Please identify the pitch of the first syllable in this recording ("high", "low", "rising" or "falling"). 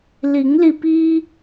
rising